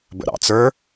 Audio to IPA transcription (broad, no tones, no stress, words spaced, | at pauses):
bə̰ɾɑ̰t͡sə˞